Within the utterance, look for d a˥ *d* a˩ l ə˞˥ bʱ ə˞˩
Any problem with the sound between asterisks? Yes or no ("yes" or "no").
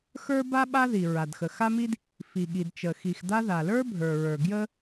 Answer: yes